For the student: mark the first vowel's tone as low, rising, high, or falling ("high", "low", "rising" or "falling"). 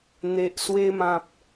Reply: low